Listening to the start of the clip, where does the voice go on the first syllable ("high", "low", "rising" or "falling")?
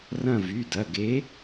falling